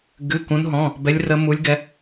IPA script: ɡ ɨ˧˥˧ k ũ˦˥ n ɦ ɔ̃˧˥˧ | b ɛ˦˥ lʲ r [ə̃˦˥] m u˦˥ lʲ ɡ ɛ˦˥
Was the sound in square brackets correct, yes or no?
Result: no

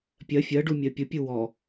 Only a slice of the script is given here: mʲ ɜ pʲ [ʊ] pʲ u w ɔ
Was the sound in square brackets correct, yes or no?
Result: yes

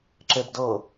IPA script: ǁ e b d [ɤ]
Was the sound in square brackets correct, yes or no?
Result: yes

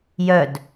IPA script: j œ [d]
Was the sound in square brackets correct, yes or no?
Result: yes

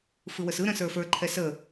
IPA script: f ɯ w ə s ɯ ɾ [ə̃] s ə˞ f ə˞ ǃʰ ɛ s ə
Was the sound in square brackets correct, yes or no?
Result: yes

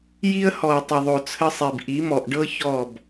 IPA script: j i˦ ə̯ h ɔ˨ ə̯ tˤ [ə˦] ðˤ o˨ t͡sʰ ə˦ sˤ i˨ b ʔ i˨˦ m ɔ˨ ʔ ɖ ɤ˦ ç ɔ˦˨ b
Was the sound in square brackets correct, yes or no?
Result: no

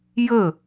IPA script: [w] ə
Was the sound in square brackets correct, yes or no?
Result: no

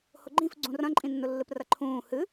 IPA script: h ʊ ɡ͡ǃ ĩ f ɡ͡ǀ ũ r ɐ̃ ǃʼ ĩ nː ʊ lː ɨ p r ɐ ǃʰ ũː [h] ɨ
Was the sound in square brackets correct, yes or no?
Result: yes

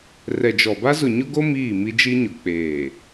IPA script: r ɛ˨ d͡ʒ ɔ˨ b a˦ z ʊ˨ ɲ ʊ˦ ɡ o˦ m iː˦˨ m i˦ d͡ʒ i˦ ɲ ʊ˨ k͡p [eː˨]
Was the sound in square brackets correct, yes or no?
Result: yes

